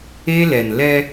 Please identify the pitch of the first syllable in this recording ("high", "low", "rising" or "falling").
high